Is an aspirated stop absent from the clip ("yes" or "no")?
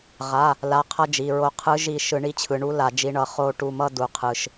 no